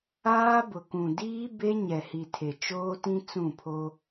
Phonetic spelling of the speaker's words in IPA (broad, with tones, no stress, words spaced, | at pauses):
aː˦bʊ˨kũ˨ diː˦ be˦ ɲɛ˨hi˨ tʰe˨t͡ʃoː˦tĩ˦ t͡sũ˦˨pʰo˦